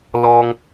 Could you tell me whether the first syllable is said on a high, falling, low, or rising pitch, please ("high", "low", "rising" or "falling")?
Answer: high